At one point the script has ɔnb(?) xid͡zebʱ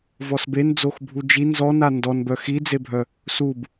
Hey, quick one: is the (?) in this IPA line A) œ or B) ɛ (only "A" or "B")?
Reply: A